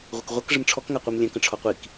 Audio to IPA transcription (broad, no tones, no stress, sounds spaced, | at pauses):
ʁʷ ə k ʁʷ ɐ k ʐ ə m ʈ͡ʂʰ ɔ k ŋ a qʷ i m lʲ ɛ̃ k ə̃ ʈ͡ʂʰ ɔ qʷ i k